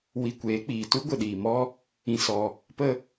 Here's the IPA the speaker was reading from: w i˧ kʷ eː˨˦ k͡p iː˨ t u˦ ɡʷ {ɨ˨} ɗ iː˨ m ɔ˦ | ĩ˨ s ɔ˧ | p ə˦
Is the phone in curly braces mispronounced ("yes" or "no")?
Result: yes